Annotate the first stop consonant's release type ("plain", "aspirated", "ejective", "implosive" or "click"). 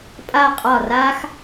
ejective